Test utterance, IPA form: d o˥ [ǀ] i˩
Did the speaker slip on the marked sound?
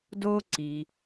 no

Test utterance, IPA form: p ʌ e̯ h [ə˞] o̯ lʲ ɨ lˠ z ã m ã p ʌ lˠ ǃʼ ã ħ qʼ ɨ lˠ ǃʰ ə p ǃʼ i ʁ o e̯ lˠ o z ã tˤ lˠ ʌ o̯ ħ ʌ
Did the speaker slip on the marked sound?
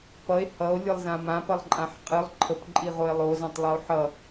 yes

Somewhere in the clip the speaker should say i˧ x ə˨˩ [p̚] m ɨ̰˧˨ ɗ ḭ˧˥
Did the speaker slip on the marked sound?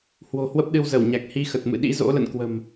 yes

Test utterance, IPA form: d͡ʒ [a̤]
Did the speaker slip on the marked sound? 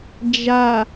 yes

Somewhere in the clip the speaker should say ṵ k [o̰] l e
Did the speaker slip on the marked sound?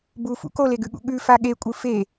yes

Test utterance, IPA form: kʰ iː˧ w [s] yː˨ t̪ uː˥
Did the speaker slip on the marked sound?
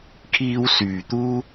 no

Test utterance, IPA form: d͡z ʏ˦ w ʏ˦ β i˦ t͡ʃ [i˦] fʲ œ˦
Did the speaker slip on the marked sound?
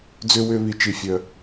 no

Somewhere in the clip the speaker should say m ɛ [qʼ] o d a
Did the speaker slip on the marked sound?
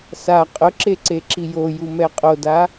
no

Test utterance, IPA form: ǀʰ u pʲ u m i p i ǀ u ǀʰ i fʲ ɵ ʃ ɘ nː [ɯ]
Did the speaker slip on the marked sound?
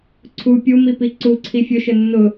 yes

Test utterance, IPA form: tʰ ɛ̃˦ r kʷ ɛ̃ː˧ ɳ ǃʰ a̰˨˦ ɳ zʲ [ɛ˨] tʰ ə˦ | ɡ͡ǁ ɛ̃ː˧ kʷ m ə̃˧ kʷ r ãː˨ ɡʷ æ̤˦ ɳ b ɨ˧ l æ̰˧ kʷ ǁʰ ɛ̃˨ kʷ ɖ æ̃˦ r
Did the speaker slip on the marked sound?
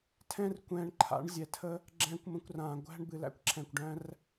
no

